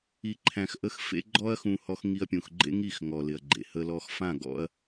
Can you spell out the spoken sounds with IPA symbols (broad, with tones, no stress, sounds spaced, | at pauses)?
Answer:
i˧ ǃʰ æ̃˧ x ʔ ə˦ x f ḛ˦ ɡ͡ǃ ɔ˦ ɐ̯ x ũ˧ h ɔ˧ x ŋ i˧ ɐ̯ pʲ ũ˨ x ɡ͡ǃ ḛ˦ ŋ i˦˨ x ŋ ɔ˨ l ɪ˨ ɐ̯ ɡ͡ǃ ḛ˨ h ə˧ l ɔ˧ x f ã˦˨ ɡ ɔ̰˧ ɐ̯